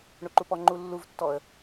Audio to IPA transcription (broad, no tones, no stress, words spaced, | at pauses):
ɳoǃupɔ ŋ͡ǃulːuvtːɔə̯